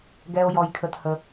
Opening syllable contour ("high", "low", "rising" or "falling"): high